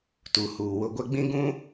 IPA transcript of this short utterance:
t u˨ h uː˨ w ʊ˦ ɡʷ ɛ˦ ɡ͡b ĩ˦ ɡ ũ˦

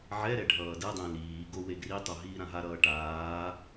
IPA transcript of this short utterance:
ʕ ɛ ɾ ɛ ɖʱ ʌː d ɛ dˤ ɛ̃ l iː ɡ o w e ɡ r i tˤ o ɦ iː ɾ ã ɦ a ɾ ʌː ʈ aː

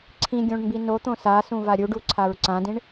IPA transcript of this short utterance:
ǀʰ ĩ ɡʲ õ ɳ m b i n o t̪ õ s a s ũ v a ɾʲ u ɖ u ǀʰ a ɹ ǀ ã d ĩ ɳ

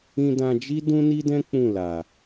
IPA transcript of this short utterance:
ĩ˧ d ã˧ d͡ʒ i˦ d ũ˦ n i˦ d ɛ̃˦ k͡p ũ˦˨ l a˨

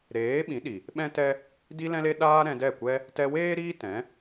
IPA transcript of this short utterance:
ɾ eː˨˦ ɓ ĩ˨˦ ɗ i˨ | ɓ ɛ̃˦ t ɛ˦ | d i˧ l ɛ̃˧ l e˧ ɗ aː˧ ɾ ɛ̃˧ d ɛ˦˨ kʷ ɛ˧ | t ɛ˧ w eː˦ ɾ iː˦ t ɛ̃˨˦

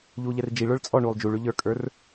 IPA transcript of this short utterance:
ʎ uː ʎ ɛ r d͡ʒ i ɭ ə˞ ɭ t͡sʼ ɔ ɳ uː lˠ d͡ʒ u ɭ ʉ ʎ ə˞ kʼ ə˞ r

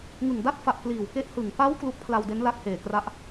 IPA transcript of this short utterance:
ŋ ɯ˨˩ ŋ d a˥˩ t̚ f a˨˩ ʔ k l iː˨˩ w k e˦˥ ʔ h ɯ˨˩ ŋ p a˦˥ w k l u˦˥ k̚ pʰ l a˧ w d e˦˥ n l a˦˥ k̚ h eː˨˩ k r a˦˥ ʔ

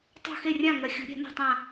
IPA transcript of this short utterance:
tˤ o̤˧˩ x e˧˩ rʲ ã˧˩ ŋ ɐ˨˩˦ xʲ ṳ˨˩˦ ɾʲ ɛ̤˨˩˦ n o̤˧˩ tˤ ã˧˩

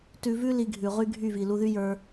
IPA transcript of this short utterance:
t ʉ˧ v ʉ˦ l i˧ ɡʱ ʉ˨ ʁ y˦ ɡʱ y˦˨ v i˨ l u˧ ð y˦ j ə˞˧

